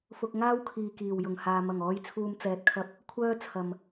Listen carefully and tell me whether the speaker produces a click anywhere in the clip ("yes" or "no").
no